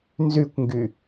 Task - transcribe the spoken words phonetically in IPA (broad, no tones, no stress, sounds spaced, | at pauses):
n z y kʷ ŋ ɡ y